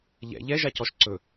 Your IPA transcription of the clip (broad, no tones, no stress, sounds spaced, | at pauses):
ʎ ɛ̰ ʎ ɛ ʒ a c ɔ ʃ ǀ ɵ